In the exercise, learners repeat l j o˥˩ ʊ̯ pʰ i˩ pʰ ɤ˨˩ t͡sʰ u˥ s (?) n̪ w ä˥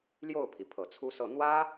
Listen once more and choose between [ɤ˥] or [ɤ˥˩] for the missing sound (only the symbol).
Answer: ɤ˥˩